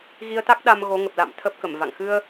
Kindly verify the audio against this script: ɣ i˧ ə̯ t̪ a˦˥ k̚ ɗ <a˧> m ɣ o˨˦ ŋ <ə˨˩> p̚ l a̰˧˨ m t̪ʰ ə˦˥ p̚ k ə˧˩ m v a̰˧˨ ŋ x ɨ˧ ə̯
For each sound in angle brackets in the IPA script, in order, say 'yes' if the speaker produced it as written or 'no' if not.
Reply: yes, yes

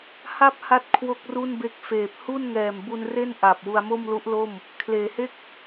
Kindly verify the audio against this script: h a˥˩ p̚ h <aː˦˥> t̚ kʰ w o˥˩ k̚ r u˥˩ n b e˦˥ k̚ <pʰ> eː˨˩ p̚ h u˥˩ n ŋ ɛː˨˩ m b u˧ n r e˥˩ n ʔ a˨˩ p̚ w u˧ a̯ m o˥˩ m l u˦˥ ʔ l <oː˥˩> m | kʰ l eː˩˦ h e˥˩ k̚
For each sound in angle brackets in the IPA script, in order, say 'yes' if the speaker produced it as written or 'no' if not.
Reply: no, no, no

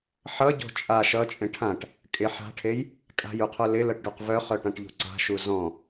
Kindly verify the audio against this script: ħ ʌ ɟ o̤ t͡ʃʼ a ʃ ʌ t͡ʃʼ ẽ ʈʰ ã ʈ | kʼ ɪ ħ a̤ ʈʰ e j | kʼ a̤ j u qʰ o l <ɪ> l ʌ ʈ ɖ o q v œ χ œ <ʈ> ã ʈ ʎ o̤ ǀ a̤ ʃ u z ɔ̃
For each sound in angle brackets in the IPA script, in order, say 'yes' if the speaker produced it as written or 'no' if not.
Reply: yes, yes

